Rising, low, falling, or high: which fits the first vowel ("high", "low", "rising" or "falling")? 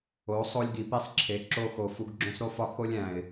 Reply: rising